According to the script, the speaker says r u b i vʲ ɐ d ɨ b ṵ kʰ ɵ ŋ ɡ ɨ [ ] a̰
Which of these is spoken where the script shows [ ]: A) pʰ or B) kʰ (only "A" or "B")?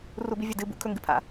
A